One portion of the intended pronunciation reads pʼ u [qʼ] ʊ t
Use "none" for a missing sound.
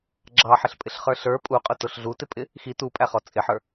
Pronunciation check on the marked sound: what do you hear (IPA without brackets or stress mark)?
qʼ